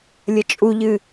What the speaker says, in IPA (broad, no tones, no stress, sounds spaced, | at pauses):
lʲ ə t͡ʃʼ u ʎ ɨ